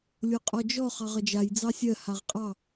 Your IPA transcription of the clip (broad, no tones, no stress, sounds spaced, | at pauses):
lʲ o qʼ ɔ d͡ʒ ɔ χ ɑ ʁ ʌ d͡ʒ a j d͡z ɑ sʲ ɜ h a ʁ qʼ ɑ